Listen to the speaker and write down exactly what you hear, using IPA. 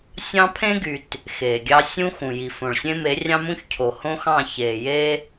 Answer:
sʲ ɑ̃˦ pʰ ẽ˦ ɡ y˨ t | x eː˨ ɡʲ ɑ˦ sʲ ũ˦ x ũ˨ j i˨ f õ˨ ɭ sʲ ẽ˦ m e˨˦ rʲ ɑ̃˦ m ũ˦ ç cʰ o˨ h õ˦ x ɑ̃˦˨ ç eː˨ j e˦

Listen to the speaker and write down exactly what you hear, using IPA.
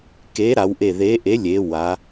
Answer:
k e˨˥ ɾ a˩˧ w ʔ e˧˩ ð e˨˥ ʔ e˨˥ lʲ e˩˧ w a˩˧

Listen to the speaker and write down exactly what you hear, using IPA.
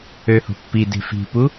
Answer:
ø h o̤ pː i d e̤ f i̤ p u

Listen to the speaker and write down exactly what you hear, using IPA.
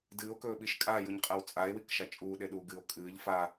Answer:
d ɨː o̯ k ɵː ɓ i ʃ kʼ aː j u ɲ qʼ a w t͡sʼ a e̯ w i k ʃ a t͡ʃʼ uː ɗ e ɗ uː ɡ ɨː o̯ kʼ ɨː ʎ f a

